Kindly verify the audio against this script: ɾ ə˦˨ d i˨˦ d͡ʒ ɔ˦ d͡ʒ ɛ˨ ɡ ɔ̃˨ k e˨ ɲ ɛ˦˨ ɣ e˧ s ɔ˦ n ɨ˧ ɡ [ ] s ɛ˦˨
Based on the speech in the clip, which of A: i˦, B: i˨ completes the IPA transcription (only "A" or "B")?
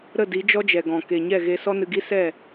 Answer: A